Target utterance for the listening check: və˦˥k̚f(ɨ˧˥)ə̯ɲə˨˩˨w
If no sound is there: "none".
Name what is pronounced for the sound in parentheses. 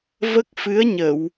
ɨ˧˥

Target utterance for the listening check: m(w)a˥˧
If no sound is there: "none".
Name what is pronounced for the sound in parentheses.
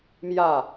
j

